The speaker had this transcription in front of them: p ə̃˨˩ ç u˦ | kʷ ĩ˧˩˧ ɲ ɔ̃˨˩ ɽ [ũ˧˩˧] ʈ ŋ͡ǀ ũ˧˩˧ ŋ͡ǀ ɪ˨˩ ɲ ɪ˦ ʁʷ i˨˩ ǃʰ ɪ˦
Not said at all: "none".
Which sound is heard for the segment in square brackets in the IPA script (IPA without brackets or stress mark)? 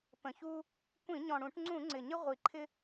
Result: ũ˧˩˧